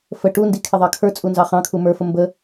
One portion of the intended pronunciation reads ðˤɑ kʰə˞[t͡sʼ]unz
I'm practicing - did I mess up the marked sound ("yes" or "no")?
no